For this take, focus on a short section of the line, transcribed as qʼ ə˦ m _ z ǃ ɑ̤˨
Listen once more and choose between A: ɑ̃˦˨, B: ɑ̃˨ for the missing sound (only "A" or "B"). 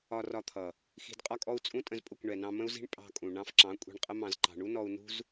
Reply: B